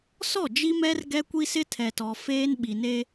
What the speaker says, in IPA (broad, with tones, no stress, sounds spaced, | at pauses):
s ɔ˦˨ d͡ʒ i˦ m ɛ˦ r ɡ ɛ˦ kʷ i˦ s ɪ˦ tʰ ɛ˨ t ɔ˨ f eː˦ n ɓ i˨ n e˦